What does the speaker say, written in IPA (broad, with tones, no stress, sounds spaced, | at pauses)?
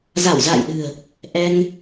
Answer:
z a˧˩ w z a̰ː˧˨ j ɗ ɨ̤˨˩ ə̯ | ʔ ɛ˧ ŋ